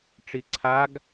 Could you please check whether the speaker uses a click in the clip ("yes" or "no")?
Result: yes